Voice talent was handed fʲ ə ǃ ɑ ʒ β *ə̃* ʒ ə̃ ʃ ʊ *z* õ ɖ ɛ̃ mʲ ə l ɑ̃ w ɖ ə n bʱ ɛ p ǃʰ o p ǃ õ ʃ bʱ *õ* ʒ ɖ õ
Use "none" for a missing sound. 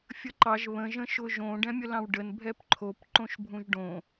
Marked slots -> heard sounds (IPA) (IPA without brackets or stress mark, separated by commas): ə̃, ʒ, ũ